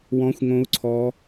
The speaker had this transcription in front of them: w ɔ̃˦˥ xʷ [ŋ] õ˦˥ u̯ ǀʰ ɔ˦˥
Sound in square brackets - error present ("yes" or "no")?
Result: no